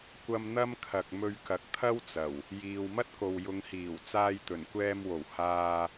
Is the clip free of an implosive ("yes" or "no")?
yes